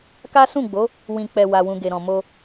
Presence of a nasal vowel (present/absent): present